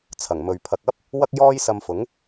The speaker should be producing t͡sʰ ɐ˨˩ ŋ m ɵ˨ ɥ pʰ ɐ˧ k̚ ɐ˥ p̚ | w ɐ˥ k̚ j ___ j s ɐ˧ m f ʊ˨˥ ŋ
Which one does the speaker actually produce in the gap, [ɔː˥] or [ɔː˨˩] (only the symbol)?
ɔː˥